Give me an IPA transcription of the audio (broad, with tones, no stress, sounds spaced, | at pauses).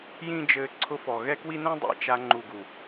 j ĩ˦ d͡ʒ ɘː˧ ǀʰ ʊ˧ f ɔ˨ ɣ ɛ˦ k w i˦ n ɛ̃˦ dˤ ḭ˨ t͡ʃ a˧ ŋ͡ǃ u˨ ɡ u˨